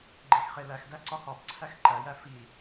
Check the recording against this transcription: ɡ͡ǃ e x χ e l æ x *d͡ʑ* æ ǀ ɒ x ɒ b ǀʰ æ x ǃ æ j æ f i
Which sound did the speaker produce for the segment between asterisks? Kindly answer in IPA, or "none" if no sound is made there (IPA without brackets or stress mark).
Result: d